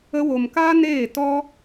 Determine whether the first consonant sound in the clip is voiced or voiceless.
voiced